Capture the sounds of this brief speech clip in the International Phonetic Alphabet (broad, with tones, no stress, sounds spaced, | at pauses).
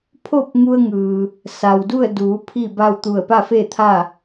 pʰ o˥˨ p̚ ŋ u˧ ə̯ ŋ ɯː˩ | s a˩ w d u˥˨ ə̯ d uː˩˧ pʰ i˥˨ b a˥˨ w t̪ u˧˩ ə̯ p a˥˨ f e˥˨ t̪ʰ a˥˨